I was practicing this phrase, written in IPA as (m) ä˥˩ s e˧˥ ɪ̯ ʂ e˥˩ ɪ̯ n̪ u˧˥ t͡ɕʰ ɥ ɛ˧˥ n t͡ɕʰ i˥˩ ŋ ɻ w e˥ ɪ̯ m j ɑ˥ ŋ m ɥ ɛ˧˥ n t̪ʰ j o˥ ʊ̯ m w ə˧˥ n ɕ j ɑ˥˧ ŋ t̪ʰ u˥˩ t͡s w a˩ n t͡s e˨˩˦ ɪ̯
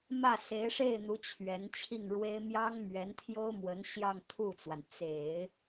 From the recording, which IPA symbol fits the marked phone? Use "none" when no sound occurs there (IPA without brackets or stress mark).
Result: m